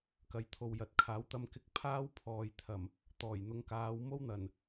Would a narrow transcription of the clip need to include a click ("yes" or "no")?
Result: no